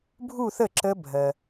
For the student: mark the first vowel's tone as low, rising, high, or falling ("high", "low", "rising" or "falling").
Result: falling